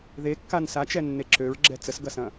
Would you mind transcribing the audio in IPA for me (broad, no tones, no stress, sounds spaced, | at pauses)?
ð e kː a n s a t͡ʃ ɛ nː e ǁ ø ɹ ɡ͡ǁ ɛ t͡s ə s ɡ ɐ s ɐ̃